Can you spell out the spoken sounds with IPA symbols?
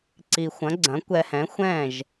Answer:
ǀ i˨ xʷ ɐ̃˩˥ ɡ͡ǀ ɐ̃˩˥ kʷ ɛ˨ h ɛ̃˩˥ xʷ ɛ̃˥˩ ʒ

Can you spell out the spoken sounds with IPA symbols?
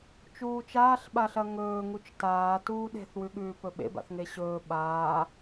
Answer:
t͡ʃ uː t͡ʃ aː ɬ ɓ a ɬ ɐ ŋ ɵː ŋ u t͡ʃ t aː t uː ɗ e̤ θ w ʉ ɠ ʉː p ɵ ɓ ḛ b a̰ θ ŋ e ɕ ɵː ɓ aː

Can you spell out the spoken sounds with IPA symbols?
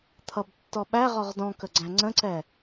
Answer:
t̪ʰ ʌ b tː ɔ ɓ æ ʁ ɔ ʁ d ɔ̃ k ə ɡ͡ǀ æ̃ ŋ͡ǀ ə̃ ǀ ɛ

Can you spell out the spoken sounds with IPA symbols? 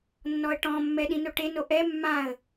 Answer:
nː ɔ ə̯ ʈ ɔ̃ mː ɛ ɗ ĩ n o ʈ e n o ʔ ɛ mː ã ə̯

